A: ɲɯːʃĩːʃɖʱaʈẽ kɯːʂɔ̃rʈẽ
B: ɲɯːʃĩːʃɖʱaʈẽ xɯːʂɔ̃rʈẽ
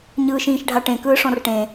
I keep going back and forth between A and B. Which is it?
A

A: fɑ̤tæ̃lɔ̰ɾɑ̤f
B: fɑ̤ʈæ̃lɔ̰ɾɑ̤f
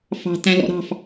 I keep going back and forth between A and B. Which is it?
A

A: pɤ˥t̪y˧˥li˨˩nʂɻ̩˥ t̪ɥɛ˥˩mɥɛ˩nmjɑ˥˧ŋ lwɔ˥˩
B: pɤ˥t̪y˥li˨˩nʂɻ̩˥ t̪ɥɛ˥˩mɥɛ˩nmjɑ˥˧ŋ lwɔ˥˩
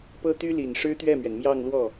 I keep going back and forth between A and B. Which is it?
B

